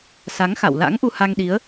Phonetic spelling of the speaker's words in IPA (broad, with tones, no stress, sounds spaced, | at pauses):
s a˨˦ ŋ x a̰˧˨ w l a̰˧˥ ŋ ʔ u˧ h a˧ ŋ ɗ i˨˦ ə̯